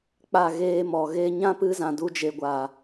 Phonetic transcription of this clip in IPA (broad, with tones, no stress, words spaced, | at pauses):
k͡pa˦˨ ɣeː˧mɔ˨ ɣe˧ɲã˦pɨ˧zã˨ du˧d͡ʒe˨ ɡʷaː˨